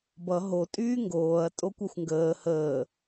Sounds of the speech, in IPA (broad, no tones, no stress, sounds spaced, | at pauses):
b ʌ ɦ o tʼ yː ŋ ɡ oː ɐ̯ tʼ o kʷ a xʷ ŋ ɡ əː h əː